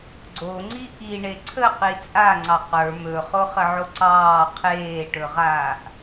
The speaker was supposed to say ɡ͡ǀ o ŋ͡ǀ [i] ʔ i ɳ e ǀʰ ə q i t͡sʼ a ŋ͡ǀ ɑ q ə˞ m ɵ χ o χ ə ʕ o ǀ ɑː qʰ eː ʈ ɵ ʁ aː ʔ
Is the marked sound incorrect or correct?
correct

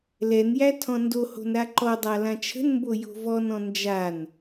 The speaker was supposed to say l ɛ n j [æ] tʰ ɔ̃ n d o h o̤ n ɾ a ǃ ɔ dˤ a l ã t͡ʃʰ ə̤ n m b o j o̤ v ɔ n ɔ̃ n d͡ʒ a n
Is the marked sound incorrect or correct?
correct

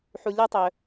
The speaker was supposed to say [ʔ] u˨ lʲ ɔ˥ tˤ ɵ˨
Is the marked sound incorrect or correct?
incorrect: ħ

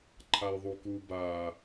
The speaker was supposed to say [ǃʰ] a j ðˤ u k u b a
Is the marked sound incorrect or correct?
correct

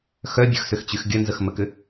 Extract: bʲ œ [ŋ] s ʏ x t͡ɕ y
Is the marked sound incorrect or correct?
incorrect: x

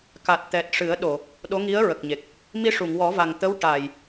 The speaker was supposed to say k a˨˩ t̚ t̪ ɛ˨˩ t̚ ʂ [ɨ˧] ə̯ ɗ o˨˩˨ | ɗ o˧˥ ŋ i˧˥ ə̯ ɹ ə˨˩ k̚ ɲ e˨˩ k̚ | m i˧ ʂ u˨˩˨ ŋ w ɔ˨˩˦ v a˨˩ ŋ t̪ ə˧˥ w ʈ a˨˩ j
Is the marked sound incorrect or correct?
incorrect: ɨ˨˩˦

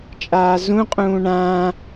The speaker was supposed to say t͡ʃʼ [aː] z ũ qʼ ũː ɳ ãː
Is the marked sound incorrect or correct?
correct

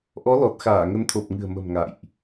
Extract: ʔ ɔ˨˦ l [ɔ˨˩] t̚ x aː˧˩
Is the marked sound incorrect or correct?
correct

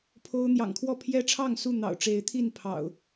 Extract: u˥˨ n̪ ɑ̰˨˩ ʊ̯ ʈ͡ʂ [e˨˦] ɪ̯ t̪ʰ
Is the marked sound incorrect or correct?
correct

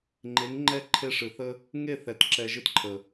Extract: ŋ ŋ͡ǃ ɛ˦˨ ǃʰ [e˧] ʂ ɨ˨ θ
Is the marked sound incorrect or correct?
correct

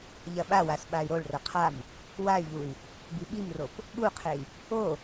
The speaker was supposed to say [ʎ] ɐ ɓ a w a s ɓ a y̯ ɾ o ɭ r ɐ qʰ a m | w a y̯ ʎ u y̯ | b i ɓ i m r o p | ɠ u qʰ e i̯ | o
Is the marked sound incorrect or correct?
correct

